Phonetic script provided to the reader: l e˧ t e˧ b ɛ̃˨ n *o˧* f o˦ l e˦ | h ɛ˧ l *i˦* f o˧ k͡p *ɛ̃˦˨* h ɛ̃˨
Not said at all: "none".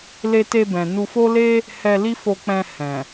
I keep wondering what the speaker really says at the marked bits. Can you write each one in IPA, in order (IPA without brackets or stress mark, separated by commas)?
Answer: u˧, i˦, ɛ̃˧